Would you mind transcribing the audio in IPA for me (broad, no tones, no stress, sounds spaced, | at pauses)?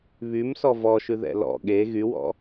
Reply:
β y m s ɔ v ɔ ʃ ʉ ð ɛ̰ l ɔ̰ ɠ e ɣ y w ɔ̰